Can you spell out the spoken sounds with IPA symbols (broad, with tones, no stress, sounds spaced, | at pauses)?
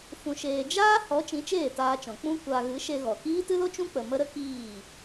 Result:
f ũ˧ ʃ eː˧ d͡ʒ aː˦ h ɔ˨˦ t͡ʃ ĩ˨˦ t͡ʃ eː˦˨ t aː˧ t͡ʃ ɔ̃˨ k͡p ũ˦ kʷ a˧ ɣ ɨ˨˦ ʃ e˧ ɣ ɔ˨ k iː˦ t ɨ˦ l o˦ t͡ʃ ũ˦ k͡p ə˧ m ə˦ ɾ ə˦ k iː˦˨